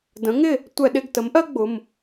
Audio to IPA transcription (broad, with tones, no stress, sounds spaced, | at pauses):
d ə̃˩˥ ŋ ɪ˥˩ | tʷ ɛ˧˩˧ ɗ ɪ˩˧˩ ɡ t ə˩˥ m ʔ ɜ˥ ɡ͡b ʊ˩˧˩ m